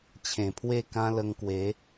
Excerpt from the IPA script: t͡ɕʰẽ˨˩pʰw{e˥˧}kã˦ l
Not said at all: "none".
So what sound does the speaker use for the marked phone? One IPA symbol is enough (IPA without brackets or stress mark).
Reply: e˥˧